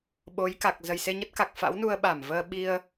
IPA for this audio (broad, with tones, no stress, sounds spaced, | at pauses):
ɓ o˨˦ j k a˨˩ k̚ z ə˨˩ j s e˧ ɲ ə˦˥ t̚ k a˨˩ k̚ f a̰˧˥ w n u˧ ə̯ ɓ a˧˩ m v əː˧ ɓ i˧ ə̯